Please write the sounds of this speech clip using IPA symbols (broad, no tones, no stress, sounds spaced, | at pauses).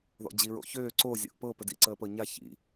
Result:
ð ɔ̰ d͡ʑ i ɹ o̰ ç øː ǀ o zʲ o̰ ʔ p ɤ p ə d ḭ ǀ əː p ɤ ɲ a ç ḭ